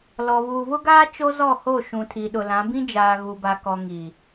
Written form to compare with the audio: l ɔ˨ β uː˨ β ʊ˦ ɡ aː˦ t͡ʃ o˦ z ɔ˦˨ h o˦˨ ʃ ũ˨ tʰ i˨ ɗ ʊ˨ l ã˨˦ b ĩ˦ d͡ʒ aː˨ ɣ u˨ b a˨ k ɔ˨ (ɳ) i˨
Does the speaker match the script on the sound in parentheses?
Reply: no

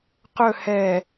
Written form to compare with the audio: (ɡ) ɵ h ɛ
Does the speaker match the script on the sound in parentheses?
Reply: no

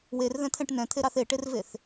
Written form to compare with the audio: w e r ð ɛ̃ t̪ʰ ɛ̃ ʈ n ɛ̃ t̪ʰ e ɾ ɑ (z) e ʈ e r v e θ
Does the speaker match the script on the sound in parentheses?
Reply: no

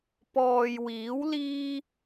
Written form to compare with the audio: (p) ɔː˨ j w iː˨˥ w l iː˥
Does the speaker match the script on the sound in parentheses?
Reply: yes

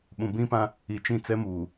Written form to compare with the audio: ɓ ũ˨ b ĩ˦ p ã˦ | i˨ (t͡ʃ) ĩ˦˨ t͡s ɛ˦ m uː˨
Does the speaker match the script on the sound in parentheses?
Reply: yes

